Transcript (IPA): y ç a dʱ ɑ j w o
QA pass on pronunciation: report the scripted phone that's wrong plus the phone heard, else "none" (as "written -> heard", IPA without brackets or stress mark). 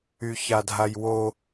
ɑ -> a